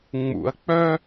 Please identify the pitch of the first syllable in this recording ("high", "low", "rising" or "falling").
low